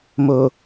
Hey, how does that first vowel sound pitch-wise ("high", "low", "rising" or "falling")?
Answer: low